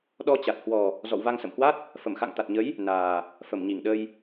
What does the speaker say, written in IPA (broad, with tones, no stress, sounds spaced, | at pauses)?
ɗ ɔ˧ t͡ɕ a˨˩ t̚ h w ɔ˨˩ | z ɔ̰˧˨ w v a˧ ŋ s ə̰˧˨ m h w a˦˥ t̚ | f ə˧˩ m x a̰˧˨ ŋ t̪ a˨˩ t̚ ɲ ə˨˦ j | n aː˨˩ | f ə˧˩ m ɲ i˧˩ ŋ ɗ ə˧ j